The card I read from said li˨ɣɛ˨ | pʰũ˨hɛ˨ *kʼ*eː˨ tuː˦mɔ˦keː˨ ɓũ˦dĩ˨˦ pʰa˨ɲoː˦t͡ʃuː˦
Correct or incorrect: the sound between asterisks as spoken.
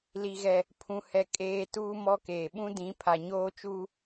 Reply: correct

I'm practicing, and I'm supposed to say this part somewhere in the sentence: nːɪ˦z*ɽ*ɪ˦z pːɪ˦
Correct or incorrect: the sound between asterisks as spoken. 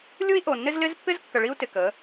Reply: incorrect: l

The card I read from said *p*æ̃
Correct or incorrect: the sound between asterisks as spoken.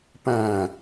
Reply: correct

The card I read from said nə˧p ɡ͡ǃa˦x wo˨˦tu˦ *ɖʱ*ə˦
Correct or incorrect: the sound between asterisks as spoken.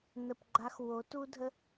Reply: incorrect: dʱ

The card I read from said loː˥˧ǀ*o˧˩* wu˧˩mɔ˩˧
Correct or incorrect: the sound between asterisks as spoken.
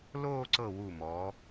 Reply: incorrect: ɤ˧˩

